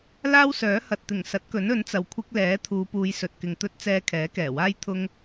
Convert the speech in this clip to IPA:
l aː˥ w s œː˨˥ h ɐ˨ t̚ t̪ ɪ˨˩ ŋ s ɐ˨˥ t̚ k ɵ˨˥ n ɵ˨˥ n t͡s ɐ˨ w kʷʰ ɪ˧ k̚ l ɛː˨˥ t̪ʰ uː˨˧ p uː˨˧ j s ɵ˨ t̚ k ɪ˨ ŋ t̪ ɵ˥ t̚ t͡s ɛː˧ kʰ ɛː˨˥ k ɛː˨˩ w aː˥ j t̪ʰ ʊ˧ ŋ

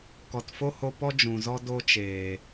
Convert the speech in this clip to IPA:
k ɔ˨ t f o˦ h o˧ p ɔ˦ d͡ʒ ũ˨ z ɔ˦ d o˧ t͡ʃ eː˨

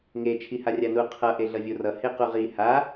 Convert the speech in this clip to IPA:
ŋ e t͡ʃʰ i h a rʲ a n u qʰ ʌ ʔ e ɮ ʌ vʲ o r ʌ h e q u ʁ i h a

